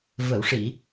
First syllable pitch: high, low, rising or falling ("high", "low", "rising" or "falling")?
low